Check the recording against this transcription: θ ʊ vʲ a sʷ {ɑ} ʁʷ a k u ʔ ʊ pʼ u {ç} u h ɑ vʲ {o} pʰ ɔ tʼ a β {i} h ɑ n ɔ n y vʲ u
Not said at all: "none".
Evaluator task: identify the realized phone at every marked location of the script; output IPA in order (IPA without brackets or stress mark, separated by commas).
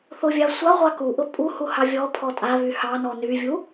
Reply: a, h, ɔ, y